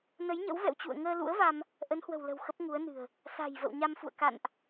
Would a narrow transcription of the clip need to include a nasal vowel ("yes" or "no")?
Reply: no